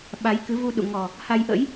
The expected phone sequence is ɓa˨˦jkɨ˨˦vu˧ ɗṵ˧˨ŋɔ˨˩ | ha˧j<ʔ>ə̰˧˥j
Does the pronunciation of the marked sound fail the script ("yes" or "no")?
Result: no